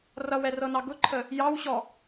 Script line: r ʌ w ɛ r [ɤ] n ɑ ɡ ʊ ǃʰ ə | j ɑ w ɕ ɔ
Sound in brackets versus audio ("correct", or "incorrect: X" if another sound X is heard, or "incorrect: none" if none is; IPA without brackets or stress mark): correct